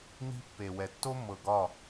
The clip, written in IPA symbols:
n i̤˦ pː e˨ w ɛ˨ tː o˦ mː ɤ˨ ɡ ɒ˦˨

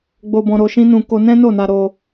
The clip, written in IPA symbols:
ɡ͡b o˧ b ɔ̃˧ ɾ o˧ ʃ ĩ˦ n ũ˧ k o˧ n ɛ̃˦ n o˦˨ n a˧ ɾ o˧

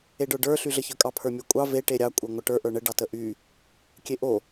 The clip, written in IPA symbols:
e ɖ ə˞ ɖ ə˞ ɬ y ɮ ə ç ə˞ kʼ ɑ pʰ ə˞ mʲ ə˞ kʷʼ ɑ v e ʈ e ɾʲ ɑ kʷʼ ə˞ ŋʷ ə ʈ ə˞ ʔ ə˞ ɳ ə ɖ ɑ t ə ʔ y | kʲ e ʔ o

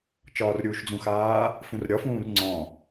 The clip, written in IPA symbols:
t͡ʃ ɒː r ɾʲ uː ʃ d͡z ũ x aː | f ũ r ɾʲ ɒ f ũː r ŋ͡ǀ ɔ̃

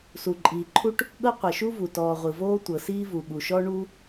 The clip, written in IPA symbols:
s u˩ ǃʼ iː˩ ǃʰ u˥ ʈ | ɠ ɤ˥ qʷ ɤ˩ ʃ u˥ v u˩ t ɔː˩ ʁʷ ɯ˩ v oː˥ tʷ ɤ˩ s iː˥ v u˩ ɠ u˩ ʃ ɔ˥ ɳ u˥

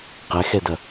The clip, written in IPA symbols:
q ɛ x ɛ d ɐ

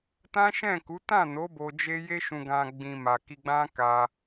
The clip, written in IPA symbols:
t ã˦ ʃ ɛ̃˦˨ k u˨˦ t ã˦˨ n o˨˦ b o˧ d͡ʒ e˦ j e˦ ʃ ũ˧ ɡ ã˧ ɡ͡b ĩ˨ m a˨ k i˧ ɡ͡b ã˦ k a˧

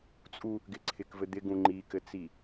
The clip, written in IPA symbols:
t͡sʼ u | ɡ ɪ ǀʰ ɪ k v ɘ d̪ ɪ ɡ ũ ŋ͡ǃ i k ɘ t͡s i

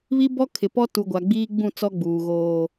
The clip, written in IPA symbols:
β i˦ b ɔ˦ kʰ ɪ˨ p ɔ˦ t u˨ ɡʷ a˨ ɡ͡b iː˦ ɡ͡b ũ˦˨ t͡s ɔ˦ ɡ͡b uː˨ ɣ oː˨

